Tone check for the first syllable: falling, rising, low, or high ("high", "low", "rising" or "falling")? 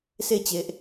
falling